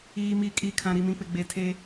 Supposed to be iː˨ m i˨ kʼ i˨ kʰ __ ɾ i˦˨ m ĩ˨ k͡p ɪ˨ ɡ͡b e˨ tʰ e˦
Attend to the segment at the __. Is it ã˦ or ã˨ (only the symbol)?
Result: ã˨